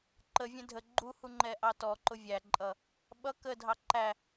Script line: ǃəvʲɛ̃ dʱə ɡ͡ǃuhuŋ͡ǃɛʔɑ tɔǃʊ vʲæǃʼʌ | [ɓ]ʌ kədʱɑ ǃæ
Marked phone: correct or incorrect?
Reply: correct